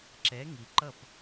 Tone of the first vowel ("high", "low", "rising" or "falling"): rising